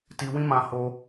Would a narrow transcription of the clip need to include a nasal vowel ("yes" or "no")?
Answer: yes